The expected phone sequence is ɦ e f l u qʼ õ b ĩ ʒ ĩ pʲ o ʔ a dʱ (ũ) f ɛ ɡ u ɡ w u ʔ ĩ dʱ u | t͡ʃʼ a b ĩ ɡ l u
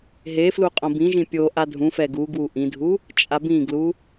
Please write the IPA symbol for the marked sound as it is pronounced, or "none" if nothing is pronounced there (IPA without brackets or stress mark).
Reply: ũ